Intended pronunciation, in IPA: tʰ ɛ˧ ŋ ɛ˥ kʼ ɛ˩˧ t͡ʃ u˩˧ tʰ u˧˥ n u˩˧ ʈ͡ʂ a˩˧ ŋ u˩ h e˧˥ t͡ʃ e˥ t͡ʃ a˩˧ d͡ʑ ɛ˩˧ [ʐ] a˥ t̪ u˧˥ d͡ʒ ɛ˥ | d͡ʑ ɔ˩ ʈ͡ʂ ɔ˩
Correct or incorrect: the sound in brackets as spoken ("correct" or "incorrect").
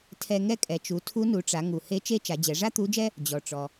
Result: correct